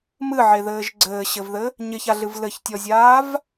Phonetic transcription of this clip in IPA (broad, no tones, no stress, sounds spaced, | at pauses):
m ɨ ʕ e ð ɘː ʒ ɡ͡ǀ ɘː ɕ ɘ v ð ɘ | ɲ ɪ ç a ɮ ɨ v l ɘ ç tʲ ɔ zʲ aː v